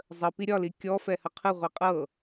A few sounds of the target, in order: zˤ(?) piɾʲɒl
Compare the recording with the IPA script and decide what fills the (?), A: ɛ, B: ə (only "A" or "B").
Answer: B